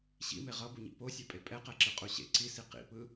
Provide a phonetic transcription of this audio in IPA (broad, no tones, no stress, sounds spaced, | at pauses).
ɕ ḭ m e ʁ ʌ b u ɲ ḭ p o sʲ ɛ pʼ e pʼ ɛ q ɛ ǁ ɯ qʼ u ɕ ḛ ǀ i s i q ḭ p ɯ